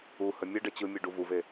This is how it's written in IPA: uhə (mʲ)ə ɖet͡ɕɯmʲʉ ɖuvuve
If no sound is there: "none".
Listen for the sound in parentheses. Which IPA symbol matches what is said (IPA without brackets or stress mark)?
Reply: mʲ